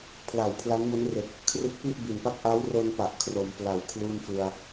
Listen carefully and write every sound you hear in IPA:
pʰ l a˨˩ w pʰ l a˦˥ n m o˦˥ n r e˨˩ k̚ | kʰ r ɯ˦˥ k̚ p i˥˩ ʔ b i˨˩ n p a˥˩ k̚ ʔ a˦˥ w r o˧ n p a˨˩ ʔ kʰ r o˩˦ m p l a˨˩ w kʰ l uː˥˩ n f ɯ˧ a̯

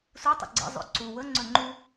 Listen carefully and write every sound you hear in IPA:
s u tˤ ə̰ ɡ͡ǀ ə̰ zˤ o̰ ǀ u w ə ŋ͡ǀ ɵ ŋ͡ǃ u

